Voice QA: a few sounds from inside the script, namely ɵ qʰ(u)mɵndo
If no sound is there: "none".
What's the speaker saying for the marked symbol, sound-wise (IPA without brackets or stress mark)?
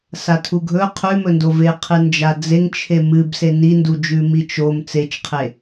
ʉ